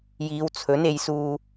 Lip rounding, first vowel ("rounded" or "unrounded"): unrounded